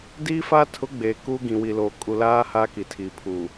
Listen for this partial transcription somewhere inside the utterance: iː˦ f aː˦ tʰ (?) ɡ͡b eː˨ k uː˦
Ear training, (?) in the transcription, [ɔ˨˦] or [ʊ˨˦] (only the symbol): ʊ˨˦